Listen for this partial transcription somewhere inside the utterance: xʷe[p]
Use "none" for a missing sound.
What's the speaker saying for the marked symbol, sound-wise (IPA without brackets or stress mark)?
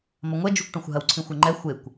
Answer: kʷ